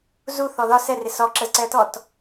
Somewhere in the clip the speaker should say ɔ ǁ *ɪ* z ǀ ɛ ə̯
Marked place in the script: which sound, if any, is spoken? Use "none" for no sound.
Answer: ə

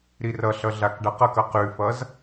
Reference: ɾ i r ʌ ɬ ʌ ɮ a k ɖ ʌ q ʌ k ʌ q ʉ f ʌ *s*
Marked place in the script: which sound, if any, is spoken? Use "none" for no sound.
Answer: z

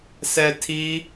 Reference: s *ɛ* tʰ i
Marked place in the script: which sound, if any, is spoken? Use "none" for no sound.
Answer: ɛ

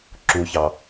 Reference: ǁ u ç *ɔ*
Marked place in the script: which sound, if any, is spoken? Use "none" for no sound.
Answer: ɑ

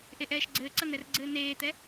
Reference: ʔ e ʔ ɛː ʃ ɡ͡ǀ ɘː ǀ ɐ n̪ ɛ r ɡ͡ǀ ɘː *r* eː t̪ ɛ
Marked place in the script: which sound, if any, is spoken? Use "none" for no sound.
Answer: n̪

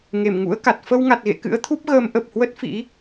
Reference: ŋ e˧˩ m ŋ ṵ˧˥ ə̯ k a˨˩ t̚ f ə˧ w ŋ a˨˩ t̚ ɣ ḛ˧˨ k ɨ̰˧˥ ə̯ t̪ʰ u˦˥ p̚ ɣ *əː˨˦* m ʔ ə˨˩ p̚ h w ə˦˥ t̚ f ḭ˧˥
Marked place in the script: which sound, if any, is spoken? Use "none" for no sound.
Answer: əː˨˦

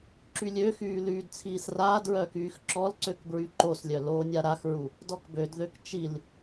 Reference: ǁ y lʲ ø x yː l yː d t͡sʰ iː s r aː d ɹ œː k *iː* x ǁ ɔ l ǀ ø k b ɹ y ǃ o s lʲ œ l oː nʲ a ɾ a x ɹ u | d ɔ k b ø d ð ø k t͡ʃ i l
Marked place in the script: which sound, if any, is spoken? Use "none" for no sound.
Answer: yː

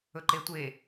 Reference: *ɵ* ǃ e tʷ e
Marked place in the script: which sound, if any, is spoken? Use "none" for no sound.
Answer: ɵ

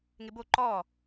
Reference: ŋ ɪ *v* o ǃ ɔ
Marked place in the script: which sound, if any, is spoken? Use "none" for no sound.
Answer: b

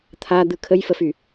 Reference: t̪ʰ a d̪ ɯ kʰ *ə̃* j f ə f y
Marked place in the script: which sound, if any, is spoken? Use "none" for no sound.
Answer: ə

